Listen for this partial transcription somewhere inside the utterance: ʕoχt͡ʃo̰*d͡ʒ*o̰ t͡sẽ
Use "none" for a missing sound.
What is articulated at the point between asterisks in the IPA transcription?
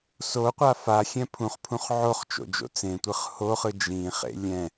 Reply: d͡ʒ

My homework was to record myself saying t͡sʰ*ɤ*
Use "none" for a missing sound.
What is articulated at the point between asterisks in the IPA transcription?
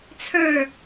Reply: ə˞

